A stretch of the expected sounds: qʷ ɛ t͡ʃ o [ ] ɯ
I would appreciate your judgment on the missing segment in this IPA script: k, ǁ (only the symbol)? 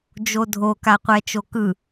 k